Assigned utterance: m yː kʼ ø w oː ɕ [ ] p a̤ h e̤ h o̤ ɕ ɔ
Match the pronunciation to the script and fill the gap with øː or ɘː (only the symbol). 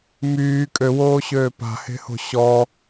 øː